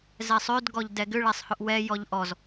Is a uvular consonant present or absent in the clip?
absent